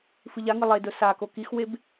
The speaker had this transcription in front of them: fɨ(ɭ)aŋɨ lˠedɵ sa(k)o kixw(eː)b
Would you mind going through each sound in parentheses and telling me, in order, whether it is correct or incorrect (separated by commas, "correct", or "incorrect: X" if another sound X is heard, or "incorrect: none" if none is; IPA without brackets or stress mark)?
incorrect: ʎ, correct, incorrect: e